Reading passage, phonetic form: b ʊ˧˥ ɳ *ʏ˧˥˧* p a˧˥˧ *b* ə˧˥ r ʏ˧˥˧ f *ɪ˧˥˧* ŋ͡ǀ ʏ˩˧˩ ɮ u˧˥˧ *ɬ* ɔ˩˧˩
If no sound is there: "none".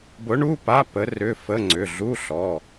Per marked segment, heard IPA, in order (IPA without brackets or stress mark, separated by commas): u˧˥˧, p, ə˧˥˧, ɬ